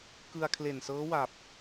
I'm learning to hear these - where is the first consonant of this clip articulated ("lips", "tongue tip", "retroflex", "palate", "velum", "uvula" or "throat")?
velum